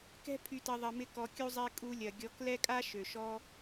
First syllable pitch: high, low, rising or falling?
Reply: high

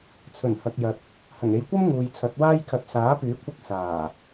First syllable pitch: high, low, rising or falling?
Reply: low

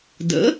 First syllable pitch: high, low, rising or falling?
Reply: rising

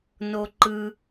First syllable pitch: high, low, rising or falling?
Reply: low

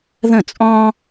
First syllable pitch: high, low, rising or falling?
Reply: falling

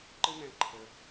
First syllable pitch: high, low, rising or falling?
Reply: high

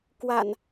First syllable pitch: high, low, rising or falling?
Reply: low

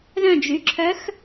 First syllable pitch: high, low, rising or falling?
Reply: falling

